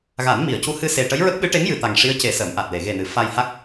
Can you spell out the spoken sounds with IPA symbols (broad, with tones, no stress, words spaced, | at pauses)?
ɣa˨˩˦nmi˨˩˨ə̯cu˧˥hɨ˧ se˨˩ʈə˧˥jɹə˦˥k̚ ɓɨ˧˥ʈe˧˥ŋjɨ˨˩ t̪a˨˩ŋʂi˧˥ə̯ ce˨˩˦ sə˨˩˦mʔa˨˩t̚le˨˩˨ ɣe˨˩nɨ˨˩˨ fa˧jha˦˥k̚